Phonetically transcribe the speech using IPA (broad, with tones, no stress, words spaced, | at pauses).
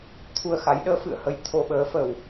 t̪ʰu˧ə̯xa˨˦j ɗəː˨˦ fɨ̰˧˨ə̯hə˧j t̪ʰo˧ɓəː˨˦fə˨˩w